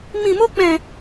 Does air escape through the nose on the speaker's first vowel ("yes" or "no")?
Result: yes